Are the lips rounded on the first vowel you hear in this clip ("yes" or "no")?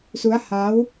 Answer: yes